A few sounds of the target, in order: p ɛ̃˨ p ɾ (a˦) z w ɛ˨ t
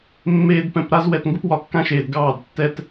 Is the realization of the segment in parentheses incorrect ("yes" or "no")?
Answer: no